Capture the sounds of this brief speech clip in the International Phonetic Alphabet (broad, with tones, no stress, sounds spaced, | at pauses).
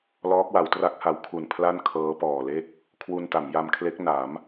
l ɔː˦˥ k̚ w a˩˦ w t r a˦˥ k̚ h a˩˦ w kʰ u˨˩ n pʰ l a˥˩ n kʰ ɤː˦˥ p ɔː˨˩ l e˥˩ k̚ | kʰ w u˧ n t a˩˦ m j a˧ m kʰ l e˦˥ k̚ n a˩˦ m